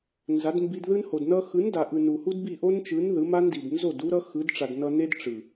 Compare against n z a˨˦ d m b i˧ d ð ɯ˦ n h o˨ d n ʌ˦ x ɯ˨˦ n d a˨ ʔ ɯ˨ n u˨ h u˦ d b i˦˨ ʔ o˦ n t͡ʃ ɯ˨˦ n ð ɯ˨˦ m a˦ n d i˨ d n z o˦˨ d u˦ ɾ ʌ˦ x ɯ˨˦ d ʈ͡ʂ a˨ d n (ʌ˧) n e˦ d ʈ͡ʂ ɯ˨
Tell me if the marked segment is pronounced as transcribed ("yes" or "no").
yes